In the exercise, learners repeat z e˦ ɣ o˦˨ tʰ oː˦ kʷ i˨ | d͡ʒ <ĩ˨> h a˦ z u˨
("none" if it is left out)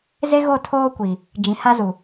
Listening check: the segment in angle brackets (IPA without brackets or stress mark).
ĩ˨